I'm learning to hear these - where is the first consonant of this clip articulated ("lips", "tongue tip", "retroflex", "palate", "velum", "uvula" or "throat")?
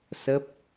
tongue tip